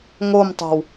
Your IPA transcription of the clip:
ŋ o m tˤ o̤ w

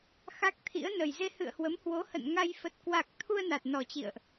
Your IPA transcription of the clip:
x a˦˥ k̚ t̪ʰ ḭ˧˥ ə̯ n ə˨˩ j z e˧ h ɨ̰˧˨ ə̯ h w ə˨˦ m h w o˨˦ h ə̰˧˨ n ŋ a˧ j f ə˨˩ t̚ k w a˨˩ k̚ t̪ʰ u˧ ə̯ n a˨˩ t̚ n ɔ˨˩ t͡ɕ ḭ˧˨ ə̯ ʔ

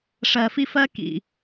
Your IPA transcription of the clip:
ʂ ɜ˨ f i˦ f ɜ˦ k ḭ˨

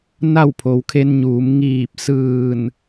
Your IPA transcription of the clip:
n a˥˨ w pʰ o˩˧ w kʰ e˧ n ɲ uː˩˧ m ŋ iː˧˩ p̚ s ɯː˧˩ n

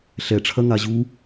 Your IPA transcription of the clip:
ɬ ɛ ʈ͡ʂʰ ɐ ŋ a ʑ u

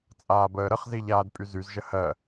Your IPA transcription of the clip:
t͡sʼ aː b əː ɾ ə χ z i ʎ aː d pʼ y z y z ʒ ə h ɜ

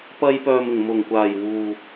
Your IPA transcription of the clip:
p ɐ˧ j p œː˨ m ɪ˨˩ ŋ m ʊ˨˩ ŋ kʷ aː˨˩ j w uː˨

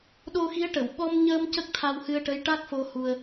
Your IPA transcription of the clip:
ɗ o˧ x i˧˥ ə̯ ʈ ə˨˩˨ w ɓ ɔ˧ m ɲ əː˧ m c ə˦˥ k̚ t̪ʰ a˧ w h ɨ˧ ə̯ ʈ ə˧˥ j ʈ a˦˥ k̚ f o˧ h u˧ ə̯

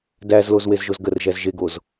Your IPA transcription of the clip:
d æ z l o z w e z ʒ o z ɡ ə r ʒ æ z ʒ e ɡ o z

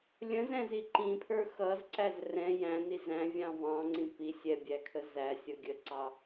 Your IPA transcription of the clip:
lʲ ə̃ z ɛ̃ z i ǃ ĩ pʰ ə˞ x ʌ z ǀ æ z r ɛ̃ j æ̃ n i z æ̃ vʲ ɑ̃ v ɑ̃ ŋ͡ǀ ĩ p i sʲ ɛ bʲ æ kʰ ə z æ sʲ ʌ ɡʲ ə ǀ ɑ

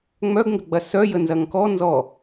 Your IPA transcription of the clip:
ŋ͡m œ ɡ ŋ ɡ ə ɡ͡b ɐ s œ j ə n z ɐ ŋ k ɔ n z ɔ

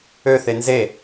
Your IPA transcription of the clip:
ø θ e n z e

